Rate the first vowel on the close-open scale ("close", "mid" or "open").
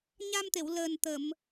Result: open